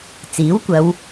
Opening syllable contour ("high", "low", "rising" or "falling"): rising